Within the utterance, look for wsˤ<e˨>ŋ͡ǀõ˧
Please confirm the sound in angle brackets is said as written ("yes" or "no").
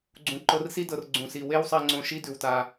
no